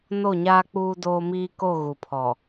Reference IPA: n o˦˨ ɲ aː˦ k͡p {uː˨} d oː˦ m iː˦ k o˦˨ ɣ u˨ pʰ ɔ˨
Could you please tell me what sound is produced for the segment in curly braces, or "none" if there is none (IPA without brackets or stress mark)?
uː˦